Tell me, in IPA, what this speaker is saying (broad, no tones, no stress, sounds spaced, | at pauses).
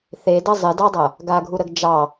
θ e d ɐ zˤ ɪ d ɑ dˤ ɐ | ɡ a ɡʱ u ɾ ə ɡ d͡ʒ ɑ